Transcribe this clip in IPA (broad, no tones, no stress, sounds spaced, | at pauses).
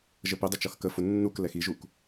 ʒ ə p ɪ dˤ ʊ t͡ʃ ʌ x k ə f ʊ nː u k l ɛ x i ʒ u k